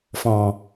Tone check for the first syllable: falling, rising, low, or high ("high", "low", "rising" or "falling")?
low